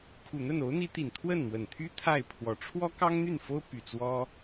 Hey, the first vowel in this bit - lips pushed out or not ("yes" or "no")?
yes